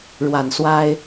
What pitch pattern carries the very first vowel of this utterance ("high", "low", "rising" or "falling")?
low